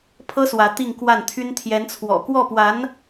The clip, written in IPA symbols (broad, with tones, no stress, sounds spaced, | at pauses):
pʰ ɤ˥ s w ä˧˥ t̪ i˥˧ ŋ k w a˥˩ n t̪ʰ y˥ n t̪ʰ j ɛ˧˥ n t͡sʰ w ɔ̰˨˩ k w ɔ˥˩ p w a˧˥ n